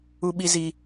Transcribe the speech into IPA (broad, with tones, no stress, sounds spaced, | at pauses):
u˦ ɓ i˦ z iː˦